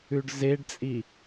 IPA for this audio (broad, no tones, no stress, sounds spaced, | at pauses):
ʉ ɖ z e ɖ t͡sʼ i